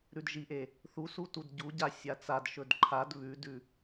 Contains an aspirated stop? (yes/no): yes